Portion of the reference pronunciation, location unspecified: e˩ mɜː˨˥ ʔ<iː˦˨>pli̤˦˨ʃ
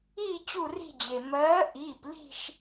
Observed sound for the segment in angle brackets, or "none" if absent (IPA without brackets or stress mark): iː˩˧˩